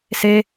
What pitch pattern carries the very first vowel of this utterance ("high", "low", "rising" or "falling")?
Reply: high